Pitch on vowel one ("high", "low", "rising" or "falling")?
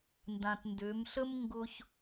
low